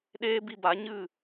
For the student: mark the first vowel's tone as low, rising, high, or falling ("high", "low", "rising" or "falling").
high